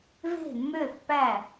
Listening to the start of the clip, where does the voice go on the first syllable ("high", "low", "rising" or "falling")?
falling